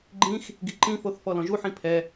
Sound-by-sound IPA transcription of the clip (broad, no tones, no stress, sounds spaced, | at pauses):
ɡ͡ǃ ĩ x | ɡ i ǃ ĩ f o θ f ɔ l ɔ̃ ʒ u ħ ĩ pʰ ɛ